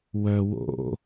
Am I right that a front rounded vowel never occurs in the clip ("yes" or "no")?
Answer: no